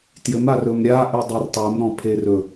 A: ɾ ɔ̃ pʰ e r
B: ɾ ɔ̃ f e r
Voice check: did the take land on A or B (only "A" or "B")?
A